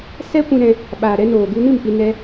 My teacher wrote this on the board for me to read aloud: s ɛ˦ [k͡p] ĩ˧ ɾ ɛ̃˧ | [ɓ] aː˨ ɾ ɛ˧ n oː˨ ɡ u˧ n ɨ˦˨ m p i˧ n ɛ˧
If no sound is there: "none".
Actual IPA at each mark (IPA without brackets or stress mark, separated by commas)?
kʷ, ɓ